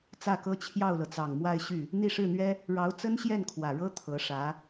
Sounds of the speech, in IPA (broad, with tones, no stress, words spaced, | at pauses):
t͡sä˥˩kɤ˥ t͡ɕʰjɑ˥˩ʊ̯lɤ˩t͡sɑ˨˩ŋ mwa˥˧ɪ̯ ɕy˥˩ | n̪i˥˧ ʂɻ̩˥˩n̪ɥɛ˥ | ɻɑ˧˥ʊ̯t͡sə˥nɕjɛ˥˩n kʰwä˨˩ɻɤ˥ t̪ʰɤ˧˥ʂä˧˥